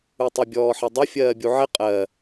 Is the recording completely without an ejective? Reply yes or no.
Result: no